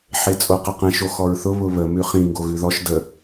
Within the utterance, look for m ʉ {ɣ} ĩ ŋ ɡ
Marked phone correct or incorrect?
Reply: incorrect: χ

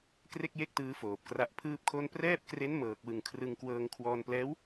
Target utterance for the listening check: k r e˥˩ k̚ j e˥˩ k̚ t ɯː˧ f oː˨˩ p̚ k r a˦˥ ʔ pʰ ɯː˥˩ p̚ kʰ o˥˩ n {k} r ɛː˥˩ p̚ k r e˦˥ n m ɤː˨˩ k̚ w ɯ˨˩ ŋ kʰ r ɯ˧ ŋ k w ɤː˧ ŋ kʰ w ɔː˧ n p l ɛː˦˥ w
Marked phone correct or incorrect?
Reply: incorrect: p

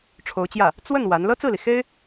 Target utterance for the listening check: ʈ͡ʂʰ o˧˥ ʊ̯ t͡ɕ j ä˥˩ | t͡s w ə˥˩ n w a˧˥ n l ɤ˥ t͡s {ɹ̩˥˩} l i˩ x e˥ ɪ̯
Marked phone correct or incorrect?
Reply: correct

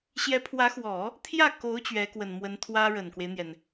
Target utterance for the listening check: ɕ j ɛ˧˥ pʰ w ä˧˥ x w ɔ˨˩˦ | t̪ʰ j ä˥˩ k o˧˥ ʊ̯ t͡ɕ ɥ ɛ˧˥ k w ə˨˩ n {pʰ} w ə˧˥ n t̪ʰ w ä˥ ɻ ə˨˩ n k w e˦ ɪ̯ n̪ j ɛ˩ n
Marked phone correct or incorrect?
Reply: incorrect: m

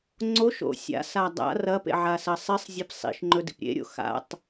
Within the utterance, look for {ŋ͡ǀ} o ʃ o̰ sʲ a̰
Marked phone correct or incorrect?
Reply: correct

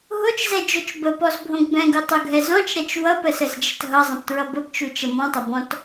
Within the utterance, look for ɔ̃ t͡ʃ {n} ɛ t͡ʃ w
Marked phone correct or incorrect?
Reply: incorrect: ɾ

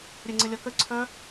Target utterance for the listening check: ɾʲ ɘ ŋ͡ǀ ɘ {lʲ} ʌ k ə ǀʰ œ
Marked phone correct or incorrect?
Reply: correct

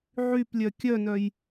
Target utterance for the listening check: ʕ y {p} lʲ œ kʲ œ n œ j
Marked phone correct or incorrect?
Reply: correct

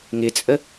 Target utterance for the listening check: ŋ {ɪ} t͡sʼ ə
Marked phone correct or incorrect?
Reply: correct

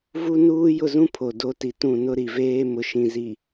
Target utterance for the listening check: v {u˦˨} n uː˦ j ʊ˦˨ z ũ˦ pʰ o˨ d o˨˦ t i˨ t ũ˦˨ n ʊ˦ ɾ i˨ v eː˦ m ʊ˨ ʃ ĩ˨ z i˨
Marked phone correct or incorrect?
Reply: incorrect: u˦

